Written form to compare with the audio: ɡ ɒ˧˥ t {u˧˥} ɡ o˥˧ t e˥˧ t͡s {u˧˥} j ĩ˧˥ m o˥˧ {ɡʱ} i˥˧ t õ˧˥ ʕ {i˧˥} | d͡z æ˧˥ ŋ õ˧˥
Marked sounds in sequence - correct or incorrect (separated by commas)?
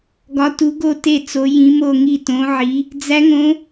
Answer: correct, incorrect, incorrect, correct